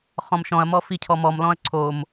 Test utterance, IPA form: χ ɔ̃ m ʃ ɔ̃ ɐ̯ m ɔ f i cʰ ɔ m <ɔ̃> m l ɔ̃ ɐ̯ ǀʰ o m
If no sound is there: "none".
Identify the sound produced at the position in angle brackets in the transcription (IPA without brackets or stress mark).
ɔ